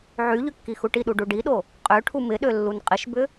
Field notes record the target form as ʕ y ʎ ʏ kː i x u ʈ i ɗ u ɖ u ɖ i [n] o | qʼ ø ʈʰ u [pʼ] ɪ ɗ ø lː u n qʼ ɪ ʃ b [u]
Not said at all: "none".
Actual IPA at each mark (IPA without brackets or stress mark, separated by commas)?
ɗ, m, ʏ